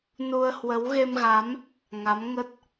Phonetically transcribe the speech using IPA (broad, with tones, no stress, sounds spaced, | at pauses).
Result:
n u˧ ə̯ h w ə˨˦ w ɣ e˧ m ɣ a˨˦ m | ŋ a˨˦ m ŋ ə˦˥ t̚